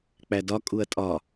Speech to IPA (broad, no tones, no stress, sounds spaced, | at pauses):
k͡p æ d ɒ kʼ u ɐ̯ tʼ ɒ